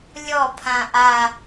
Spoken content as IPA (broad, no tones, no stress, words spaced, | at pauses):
lʲɔ pʰãʔa